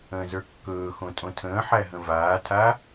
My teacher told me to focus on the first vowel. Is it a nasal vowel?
yes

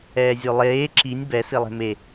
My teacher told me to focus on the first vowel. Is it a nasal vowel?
no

